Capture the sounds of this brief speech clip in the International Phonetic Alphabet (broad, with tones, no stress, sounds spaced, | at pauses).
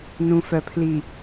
n ũ˨ f œ˨ pʰ l i˨